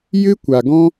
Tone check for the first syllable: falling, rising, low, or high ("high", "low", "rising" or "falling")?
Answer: high